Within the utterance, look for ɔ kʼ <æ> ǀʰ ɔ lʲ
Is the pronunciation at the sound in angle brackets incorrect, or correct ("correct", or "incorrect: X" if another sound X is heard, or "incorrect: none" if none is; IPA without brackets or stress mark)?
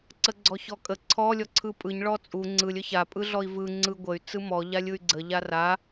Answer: incorrect: ə